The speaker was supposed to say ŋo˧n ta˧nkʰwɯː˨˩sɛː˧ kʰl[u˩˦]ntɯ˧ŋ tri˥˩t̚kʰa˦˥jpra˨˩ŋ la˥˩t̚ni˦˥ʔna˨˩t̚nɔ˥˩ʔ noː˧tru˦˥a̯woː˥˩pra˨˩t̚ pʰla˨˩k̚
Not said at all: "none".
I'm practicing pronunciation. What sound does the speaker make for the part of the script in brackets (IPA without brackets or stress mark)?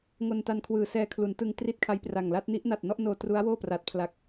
u˩˦